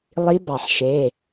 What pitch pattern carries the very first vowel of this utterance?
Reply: rising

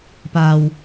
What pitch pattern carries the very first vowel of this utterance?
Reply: low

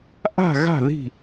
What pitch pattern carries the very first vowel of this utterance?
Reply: falling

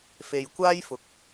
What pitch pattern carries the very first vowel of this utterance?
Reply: low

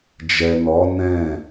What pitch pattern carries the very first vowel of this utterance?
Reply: low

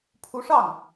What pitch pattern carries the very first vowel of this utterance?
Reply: rising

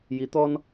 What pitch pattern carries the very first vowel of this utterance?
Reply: rising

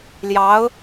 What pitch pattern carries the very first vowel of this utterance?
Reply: rising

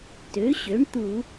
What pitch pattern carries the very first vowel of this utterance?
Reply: rising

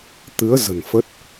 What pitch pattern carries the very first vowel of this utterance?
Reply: rising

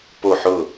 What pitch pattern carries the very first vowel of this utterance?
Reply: falling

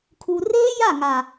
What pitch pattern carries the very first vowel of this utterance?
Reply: low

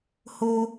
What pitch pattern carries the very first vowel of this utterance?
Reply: high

